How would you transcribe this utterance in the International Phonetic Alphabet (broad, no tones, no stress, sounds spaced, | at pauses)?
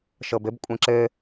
ʃ ɤ b ɘ b kʷʼ ẽ ǁ ɘ